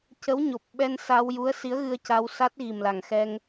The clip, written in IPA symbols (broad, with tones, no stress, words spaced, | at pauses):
cə˧˥wɲo˨˩p̚ ɓɛ˧nsa˧wju˧˥ə̯ si˧˥ə̯ɣɨ˧ə̯ca˧w sa˦˥t̚ ɣi˨˩mla˨˩ŋxɛ˧ŋ